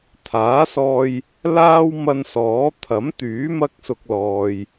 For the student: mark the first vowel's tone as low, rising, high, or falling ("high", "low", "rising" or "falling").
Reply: rising